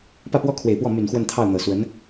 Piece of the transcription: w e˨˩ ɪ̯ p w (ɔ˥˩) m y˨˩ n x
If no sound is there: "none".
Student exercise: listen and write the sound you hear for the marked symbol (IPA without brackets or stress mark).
ɔ˥˩